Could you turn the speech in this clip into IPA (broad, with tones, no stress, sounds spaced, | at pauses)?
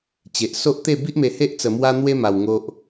t͡ɕ e˨ ʔ s o˦ ʔ t̪ e˥˧ b i˦ ʔ m e˧ h e˦ ʔ t͡s ə˧ m w a˦ n̪ w e˦ m a˧ w ŋ o˦ ʔ